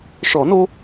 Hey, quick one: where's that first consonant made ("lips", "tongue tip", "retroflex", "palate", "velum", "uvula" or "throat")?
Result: retroflex